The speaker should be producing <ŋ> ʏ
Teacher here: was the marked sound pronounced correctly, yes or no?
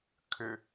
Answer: no